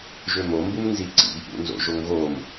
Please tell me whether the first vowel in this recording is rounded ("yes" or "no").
yes